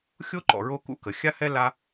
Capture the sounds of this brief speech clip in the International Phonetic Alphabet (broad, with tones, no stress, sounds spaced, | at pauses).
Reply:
xʲ o˥ ǃ ɔ̰˨ ɹ o˦ k ṵ˦ k ə˩ xʲ a˥ h ɛ˥ l a˦